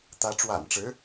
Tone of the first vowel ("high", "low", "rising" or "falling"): rising